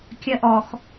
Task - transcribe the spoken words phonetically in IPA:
kʲ ɜ ʔ ɔ x

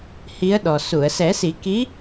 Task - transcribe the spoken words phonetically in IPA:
h i˧˥ ə̯ ɗ ɔ˨˩ s u˨˩˨ ə̯ s ɛ˨˩˦ s i˨˩˦ k i˧˥

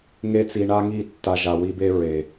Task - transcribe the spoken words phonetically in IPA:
ŋ e˦ t͡s i˧ ɳ a˦ ŋ i˦˨ tː a˧ ʒ a˨ w i˦ b e˦ ɹ e˨

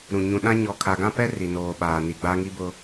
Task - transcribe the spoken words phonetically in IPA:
ɾ ũ˨ ɲ ũ˨ ɗ ã˦ ɲ ɔ˨ kʰ a˨ ɡ ã˦ p ɛ˦ r i˨ n oː˨ ɓ aː˨ n i˨ ɡ͡b a˦ ŋ i˦ b ʊ˦

